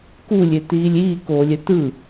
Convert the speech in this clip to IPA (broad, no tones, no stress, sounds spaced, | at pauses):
k u lʲ e t iː lʲ iː k oː lʲ ɛ t ɯ